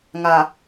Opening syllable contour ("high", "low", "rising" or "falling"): low